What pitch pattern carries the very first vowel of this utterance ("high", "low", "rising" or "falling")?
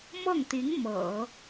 falling